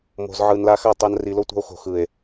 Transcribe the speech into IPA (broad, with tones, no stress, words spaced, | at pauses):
mo̤˨z ʕɯ˨nla˧xa˦˨ tˤa˧nri˨lo˦tʷa̤˧o̯ xo̤˨xɯ˨e̯